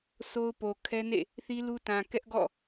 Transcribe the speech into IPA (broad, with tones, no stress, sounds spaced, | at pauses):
sʰ o˦ ʊ̯ p o˨ kʰ ɛ˦ n ḛ˦˨ | θ i˦ l u˦ t ã˨ k ɛ˦ ʔ ɡ ɔ̰˦˨